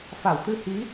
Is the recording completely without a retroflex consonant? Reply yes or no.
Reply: yes